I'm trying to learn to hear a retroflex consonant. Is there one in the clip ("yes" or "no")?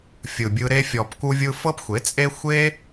no